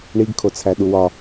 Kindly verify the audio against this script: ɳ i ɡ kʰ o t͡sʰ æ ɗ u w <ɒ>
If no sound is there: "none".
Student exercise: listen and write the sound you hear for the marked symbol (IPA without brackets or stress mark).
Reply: ɒ